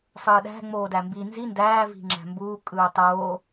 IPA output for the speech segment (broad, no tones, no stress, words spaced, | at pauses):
sˤɯːɗæ̤ ŋ͡moːdæmbi nzi ndæː vi̤ŋ͡ǁæ̤mbuː kʼɯːtˤoː